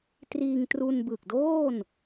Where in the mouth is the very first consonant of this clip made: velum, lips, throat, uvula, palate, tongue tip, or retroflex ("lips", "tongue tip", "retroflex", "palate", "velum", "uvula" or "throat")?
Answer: tongue tip